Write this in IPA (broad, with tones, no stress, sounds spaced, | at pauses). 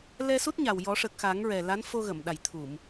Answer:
l ɛ˧ s u˦˥ t̚ ɲ a˨˩ w j ɔ˨˩˦ ʂ ə˨˩ k̚ x a˨˩˦ ŋ ɹ ɛ˨˩ l a˧˥ n f o˧ ɣ ə˨˩˨ m ɗ a˨˩ j t̪ʰ u˨˩˨ m